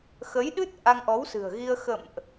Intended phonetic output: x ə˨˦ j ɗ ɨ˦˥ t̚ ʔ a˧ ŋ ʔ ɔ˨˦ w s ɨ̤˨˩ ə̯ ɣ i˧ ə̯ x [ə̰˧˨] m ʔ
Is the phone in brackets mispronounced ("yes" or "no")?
no